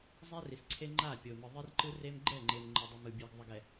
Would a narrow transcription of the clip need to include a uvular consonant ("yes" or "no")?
no